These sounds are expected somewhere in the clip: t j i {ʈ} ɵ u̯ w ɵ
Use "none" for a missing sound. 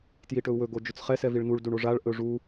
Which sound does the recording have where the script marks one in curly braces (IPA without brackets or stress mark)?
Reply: ʈ